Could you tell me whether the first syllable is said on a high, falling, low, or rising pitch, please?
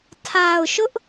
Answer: low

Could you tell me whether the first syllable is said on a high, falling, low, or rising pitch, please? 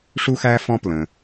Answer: high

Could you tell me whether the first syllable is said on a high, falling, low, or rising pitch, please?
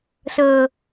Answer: low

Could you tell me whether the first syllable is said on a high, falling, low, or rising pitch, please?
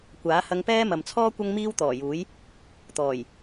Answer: rising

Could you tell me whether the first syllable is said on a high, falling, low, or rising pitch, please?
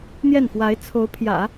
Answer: falling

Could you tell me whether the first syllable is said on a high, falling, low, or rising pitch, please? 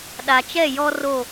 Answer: low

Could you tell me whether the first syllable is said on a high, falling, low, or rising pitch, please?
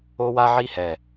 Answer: high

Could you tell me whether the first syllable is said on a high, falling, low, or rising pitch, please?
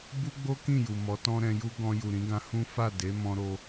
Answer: high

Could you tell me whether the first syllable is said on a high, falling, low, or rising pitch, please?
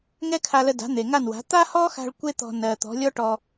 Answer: high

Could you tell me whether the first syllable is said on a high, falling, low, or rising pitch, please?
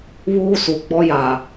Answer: high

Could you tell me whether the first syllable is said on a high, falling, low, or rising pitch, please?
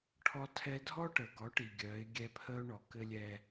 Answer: high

